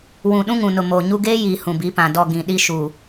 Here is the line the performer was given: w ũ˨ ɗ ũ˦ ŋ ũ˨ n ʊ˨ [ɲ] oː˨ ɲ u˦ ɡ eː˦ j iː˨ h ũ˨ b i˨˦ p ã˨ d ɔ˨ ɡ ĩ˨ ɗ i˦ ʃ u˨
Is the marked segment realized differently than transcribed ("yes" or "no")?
yes